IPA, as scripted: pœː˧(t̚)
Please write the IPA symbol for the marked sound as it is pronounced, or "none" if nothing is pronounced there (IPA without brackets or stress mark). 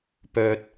t̚